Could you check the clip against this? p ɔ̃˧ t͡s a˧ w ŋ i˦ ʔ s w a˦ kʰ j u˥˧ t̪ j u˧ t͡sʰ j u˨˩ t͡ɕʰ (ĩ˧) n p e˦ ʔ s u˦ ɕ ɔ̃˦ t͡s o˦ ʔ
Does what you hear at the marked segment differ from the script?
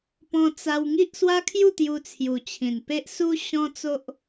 yes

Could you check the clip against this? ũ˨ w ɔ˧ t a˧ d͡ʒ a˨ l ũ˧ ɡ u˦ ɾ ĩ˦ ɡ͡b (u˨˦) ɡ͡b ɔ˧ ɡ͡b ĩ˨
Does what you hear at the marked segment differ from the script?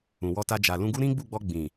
yes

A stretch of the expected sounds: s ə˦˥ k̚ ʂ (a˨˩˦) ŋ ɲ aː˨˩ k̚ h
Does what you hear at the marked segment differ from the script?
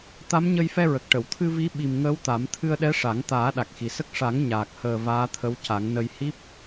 no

